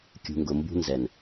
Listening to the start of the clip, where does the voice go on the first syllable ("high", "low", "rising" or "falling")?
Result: low